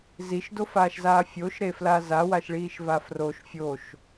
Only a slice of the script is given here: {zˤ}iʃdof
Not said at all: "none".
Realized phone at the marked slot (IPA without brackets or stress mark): z